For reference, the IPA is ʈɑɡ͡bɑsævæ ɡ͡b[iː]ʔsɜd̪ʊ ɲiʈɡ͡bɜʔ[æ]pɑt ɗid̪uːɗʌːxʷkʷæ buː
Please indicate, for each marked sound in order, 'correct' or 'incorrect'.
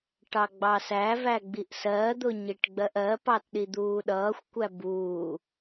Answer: incorrect: i, incorrect: ɜ

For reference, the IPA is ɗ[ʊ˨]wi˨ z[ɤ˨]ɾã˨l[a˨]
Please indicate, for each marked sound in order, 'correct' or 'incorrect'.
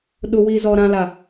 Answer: correct, incorrect: ɔ˨, correct

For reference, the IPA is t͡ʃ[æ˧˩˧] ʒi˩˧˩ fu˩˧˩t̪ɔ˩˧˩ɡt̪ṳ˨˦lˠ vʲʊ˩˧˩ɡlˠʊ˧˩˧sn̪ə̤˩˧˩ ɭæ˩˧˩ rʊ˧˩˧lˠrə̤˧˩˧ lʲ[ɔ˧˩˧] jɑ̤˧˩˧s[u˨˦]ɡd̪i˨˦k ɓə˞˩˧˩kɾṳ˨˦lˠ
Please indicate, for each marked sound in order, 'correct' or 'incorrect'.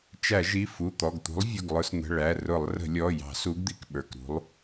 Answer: correct, incorrect: ɔ˩˧˩, correct

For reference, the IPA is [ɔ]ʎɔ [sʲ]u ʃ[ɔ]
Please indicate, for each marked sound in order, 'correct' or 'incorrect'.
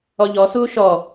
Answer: correct, incorrect: s, correct

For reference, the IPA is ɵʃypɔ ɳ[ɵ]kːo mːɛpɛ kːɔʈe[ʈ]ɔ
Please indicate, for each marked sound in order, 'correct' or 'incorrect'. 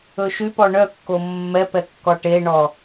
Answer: incorrect: œ, incorrect: ɳ

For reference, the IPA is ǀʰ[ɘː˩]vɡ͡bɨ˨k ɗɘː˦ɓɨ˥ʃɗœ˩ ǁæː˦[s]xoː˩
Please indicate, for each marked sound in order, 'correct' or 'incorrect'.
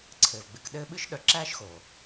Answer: correct, incorrect: ʃ

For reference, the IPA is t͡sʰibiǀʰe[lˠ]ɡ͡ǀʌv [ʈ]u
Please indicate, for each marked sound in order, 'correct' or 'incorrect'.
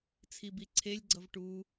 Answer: incorrect: lʲ, correct

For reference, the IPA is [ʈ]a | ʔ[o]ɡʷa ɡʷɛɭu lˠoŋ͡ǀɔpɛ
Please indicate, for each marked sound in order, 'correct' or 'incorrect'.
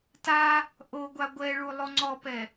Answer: incorrect: t, correct

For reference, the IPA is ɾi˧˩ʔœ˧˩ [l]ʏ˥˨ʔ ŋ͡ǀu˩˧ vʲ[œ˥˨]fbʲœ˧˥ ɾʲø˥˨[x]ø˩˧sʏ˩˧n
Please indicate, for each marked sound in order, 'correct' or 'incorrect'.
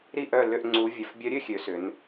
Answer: correct, incorrect: œ˩˧, incorrect: xʲ

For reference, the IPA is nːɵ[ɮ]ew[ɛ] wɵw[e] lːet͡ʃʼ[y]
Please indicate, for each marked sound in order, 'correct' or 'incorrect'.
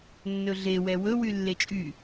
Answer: correct, correct, incorrect: y, correct

